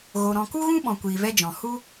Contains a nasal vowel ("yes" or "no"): yes